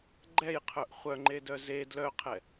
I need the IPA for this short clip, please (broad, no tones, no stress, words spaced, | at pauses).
ɡ͡ǃɛjqʰœʔ χʷœŋ͡ǃedœ ze dlœqʰɛ